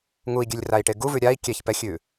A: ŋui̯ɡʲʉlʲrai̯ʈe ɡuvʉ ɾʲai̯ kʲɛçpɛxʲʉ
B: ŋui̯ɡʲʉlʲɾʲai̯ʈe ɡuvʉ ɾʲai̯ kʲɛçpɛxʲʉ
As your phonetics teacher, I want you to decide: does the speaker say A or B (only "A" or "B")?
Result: A